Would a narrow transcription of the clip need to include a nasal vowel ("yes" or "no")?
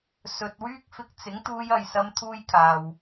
no